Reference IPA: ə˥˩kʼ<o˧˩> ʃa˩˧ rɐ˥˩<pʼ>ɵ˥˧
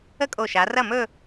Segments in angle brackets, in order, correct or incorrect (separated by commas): correct, incorrect